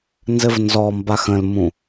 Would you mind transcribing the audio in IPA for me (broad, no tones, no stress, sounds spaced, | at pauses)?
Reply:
n z ɘ v n z ɔ m b a x ə̃ l m ũ